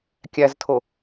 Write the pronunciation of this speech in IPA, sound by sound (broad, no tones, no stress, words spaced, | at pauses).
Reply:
kʲæztʰo